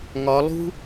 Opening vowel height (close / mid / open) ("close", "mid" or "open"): open